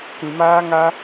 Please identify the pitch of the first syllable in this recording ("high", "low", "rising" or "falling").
low